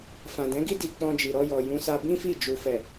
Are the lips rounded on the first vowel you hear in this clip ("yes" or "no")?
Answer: no